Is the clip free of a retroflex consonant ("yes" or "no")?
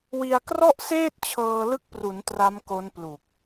yes